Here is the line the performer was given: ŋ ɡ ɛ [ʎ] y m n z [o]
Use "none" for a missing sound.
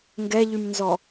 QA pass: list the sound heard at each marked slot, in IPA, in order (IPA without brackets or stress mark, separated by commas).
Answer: ʎ, ɔ